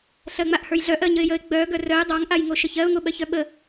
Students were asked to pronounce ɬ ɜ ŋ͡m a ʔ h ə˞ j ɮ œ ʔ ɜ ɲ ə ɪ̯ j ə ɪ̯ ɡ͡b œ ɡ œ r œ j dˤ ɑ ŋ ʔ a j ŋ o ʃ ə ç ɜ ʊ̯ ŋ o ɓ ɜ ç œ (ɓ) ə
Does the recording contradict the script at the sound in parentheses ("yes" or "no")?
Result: no